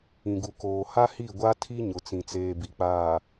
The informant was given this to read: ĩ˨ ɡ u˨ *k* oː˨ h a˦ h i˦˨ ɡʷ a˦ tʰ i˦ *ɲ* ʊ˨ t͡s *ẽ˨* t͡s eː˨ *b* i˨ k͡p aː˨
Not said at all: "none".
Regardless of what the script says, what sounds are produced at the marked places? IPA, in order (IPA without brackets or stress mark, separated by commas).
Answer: k, ɲ, ĩ˨, b